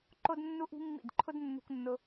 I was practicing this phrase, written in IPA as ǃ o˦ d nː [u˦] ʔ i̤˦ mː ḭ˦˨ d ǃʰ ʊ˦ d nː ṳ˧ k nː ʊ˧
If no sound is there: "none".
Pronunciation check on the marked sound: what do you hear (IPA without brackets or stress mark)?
u˦